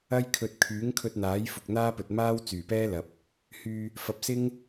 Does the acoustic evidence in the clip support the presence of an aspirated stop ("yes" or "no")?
yes